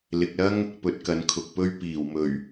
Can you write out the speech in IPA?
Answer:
l ɪ˨ k̚ l ɐ˥ ŋ | p ɵ˧ t̚ k ɐ˨˧ n kʰ ʊ˨ k̚ p ɵ˥ ɥ p iː˨˩ w m ɵ˨˩ ɥ

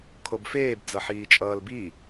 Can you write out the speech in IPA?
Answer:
kʰ o b f eː b d͡z ʌ ħ iː t͡ʃʼ ʌː l b i

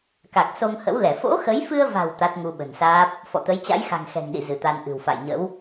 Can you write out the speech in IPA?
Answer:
k a˨˩ k̚ s o˧ ŋ h ə̰˧˥ w l ɛ˧˩ f o̰˧˥ x ə˨˦ j f ɨ˧ ə̯ v a̤˨˩ w t̪ a˦˥ t̚ ŋ u˧ ɓ ə̤˨˩ n s aː˦˥ p̚ | f ɔ̰˧˨ t̪ ə˨˦ j t͡ɕ a̰˧˥ j x a̤˨˩ ŋ x ɛ̤˨˩ ŋ ɗ ḭ˧˨ z ɨ˧˩ t̪ a˧ n ʔ ɨ̤˨˩ w f a̰˧˨ j ɲ ə̰˧˥ w

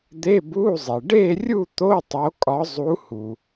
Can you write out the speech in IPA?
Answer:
d̪ e˧˥˧ b u˧˥˧ zˤ i˩ ɖ e˥˧ rʲ u˥˧ t̪ o˧˥˧ tˤ o˨˦ kʼ ɒ˨˦ zˤ u˨˦ h u˩

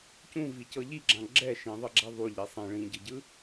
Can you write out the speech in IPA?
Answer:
c ũ v i c ɤ ʎ i ɡ͡ǁ ã ɡ͡ǁ ɛ ʃ ĩ ðˤ ɤ ɡ͡ǁ a ðˤ u ʎ i sˤ ĩ ɭ ĩ ɟ ɯ ɟ ɯ

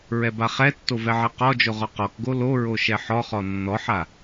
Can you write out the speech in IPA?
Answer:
ɹ ɛ b a χ ɛ tː o v ɛ ʕ ɛ q ɔ d͡ʒ o ʁ ɔ q ɔ k ɡ o l o ɹ o ʃ ɛ ħ ɔ χ ɔ nː ɔ ħ a

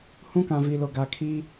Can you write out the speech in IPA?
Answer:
h ũ˦ k ã˨ v i˨ l o˨ ɡ a˨ kʰ i˦

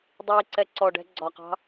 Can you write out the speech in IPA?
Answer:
dˤ i ǀ ɛ ǀ ɔ ɖ ɛ̤ ɡ͡ǀ ɒ q ɑ̤

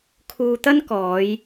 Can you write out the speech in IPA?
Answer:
kʰ uː˧ t̪ ɐ˥ n k ɔː˨˧ j

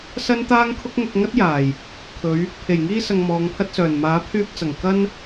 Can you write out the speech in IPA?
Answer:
s ɐ˥ n t̪ aː˥ ŋ kʰ ʊ˥ k̚ ŋ ʊ˧ k̚ ŋ ɐ˥ t̚ j aː˨˩ j | kʰ ɵ˨˧ ɥ | pʰ e˨˩ j ŋ iː˧ s ɐ˨ ŋ m ɔː˨˧ ŋ pʰ ɐ˥ t̚ s œː˨˩ n m aː˨˥ pʰ yː˧ p̚ t͡s ɐ˨˩ ŋ k ɐ˥ n

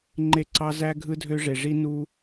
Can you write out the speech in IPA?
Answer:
ŋ͡ǃ e˦ ǀ ɑ˦ z æ˦ ɡʱ ɯ˦ dʱ ø˦ ʐ e˨ ʐ i˦ n u˦

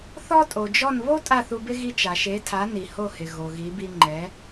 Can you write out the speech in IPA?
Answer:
θ ɔ˥ tʼ o˩ d͡ʒ ɔ˥˩ n β o˥ tʼ a˥˩ θ u˧ b ɪ˥ ɣ i˧ t͡ʃ a˩ ʃ e˩˥ tʰ a˩˥ n i˩ h o˥˩ h ɪ˩ ɣ o˩ ɣ i˩˥ b i˧ ŋ͡ǃ ɛ˩˥

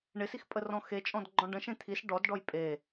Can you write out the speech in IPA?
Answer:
ɳ ɪ s i x pʼ ə r ɔ̃ x e t͡ʃʼ ɔ̃ d ɡ͡ǃ ɔ̃ ɖ ə̃ ʃ ẽ t̪ʰ i s ɖ ɔ d ɖ ɔ j pʼ e

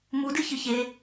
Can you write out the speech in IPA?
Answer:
m u d ɨ ç ɨ ç e

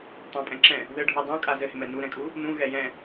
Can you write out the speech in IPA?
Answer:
tˤ ã pʼ ɛ̃ ǁ ɛ̃ | ð ɘ ɖʱ u dˤ ũ kʼ a z ɘ h ɪ m ɛ n u ɾ ɛ̃ kʼ u | n ũ ɣ ɛ j ɛ̃

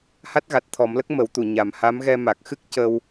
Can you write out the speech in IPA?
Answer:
h a˦˥ t̚ ɣ a˨˩ t̚ t̪ʰ ɔ˨˩˦ m l ə˦˥ k̚ m ə˨˩˦ w t̪ u˨˩˨ ɲ a˨˩ m h a˧˥ m ɣ ɛ˧ m a˨˩ k̚ x ɨ˦˥ k̚ c ə˧ w

